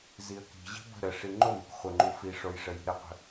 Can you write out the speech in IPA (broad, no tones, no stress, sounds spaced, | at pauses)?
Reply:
z i ə̯ k i̤ ʑ i̤ b ə̤ ɾ ə ʂ i ŋ͡ǃ o m i̤ k χʷ ə ŋ͡ǃ u f i ʂ o j ʂ ə j i̤ ɾ ə qʷ ə̤